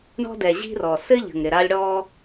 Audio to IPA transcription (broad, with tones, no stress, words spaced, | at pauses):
ɳɔ̤˦dɛ˨ ʑi̤˦rɔ˨ sɘ˦ ʎə̤˨ŋɾɪ˨ɾa˦lʲ ɽɔ˦